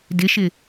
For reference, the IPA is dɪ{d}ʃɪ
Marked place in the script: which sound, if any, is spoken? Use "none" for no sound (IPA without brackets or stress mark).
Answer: none